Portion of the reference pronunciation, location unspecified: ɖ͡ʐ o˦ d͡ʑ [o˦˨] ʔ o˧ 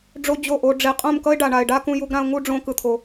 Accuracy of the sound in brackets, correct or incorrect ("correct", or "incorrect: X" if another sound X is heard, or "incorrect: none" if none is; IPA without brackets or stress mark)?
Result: correct